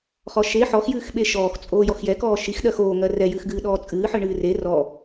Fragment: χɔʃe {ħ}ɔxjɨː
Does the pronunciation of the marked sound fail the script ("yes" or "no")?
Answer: no